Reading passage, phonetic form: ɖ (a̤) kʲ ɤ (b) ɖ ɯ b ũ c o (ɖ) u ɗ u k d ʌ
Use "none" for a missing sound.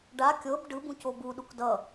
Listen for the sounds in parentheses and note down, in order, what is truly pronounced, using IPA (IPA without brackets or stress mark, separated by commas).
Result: a, b, b